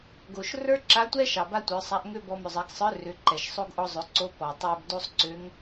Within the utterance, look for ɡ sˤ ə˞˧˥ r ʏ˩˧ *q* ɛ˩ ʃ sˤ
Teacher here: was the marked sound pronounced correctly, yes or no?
no